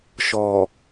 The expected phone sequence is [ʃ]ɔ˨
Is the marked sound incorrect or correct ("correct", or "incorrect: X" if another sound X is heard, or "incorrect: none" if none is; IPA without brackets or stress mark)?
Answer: correct